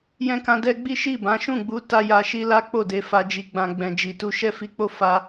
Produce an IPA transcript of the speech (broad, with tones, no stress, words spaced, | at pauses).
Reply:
jɛ̃˧kã˧dɛ˧ ɡ͡bi˦ʃi˦˨bã˨˦ ʃũ˦˨ɡ͡bu˨˦ ta˦ja˧ʃi˦ la˦ k͡po˦˨de˨˦ fa˧d͡ʒi˧ɡ͡bã˧ ɡ͡bɛ̃˨d͡ʒi˨ tu˧ʃɛ˦fi˧k͡po˦ fa˦